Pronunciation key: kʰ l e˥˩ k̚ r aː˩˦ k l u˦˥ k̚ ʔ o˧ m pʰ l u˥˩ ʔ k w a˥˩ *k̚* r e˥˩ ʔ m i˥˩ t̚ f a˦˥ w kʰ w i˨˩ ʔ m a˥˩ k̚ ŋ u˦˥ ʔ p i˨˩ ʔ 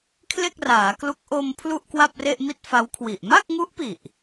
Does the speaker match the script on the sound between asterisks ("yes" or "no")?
no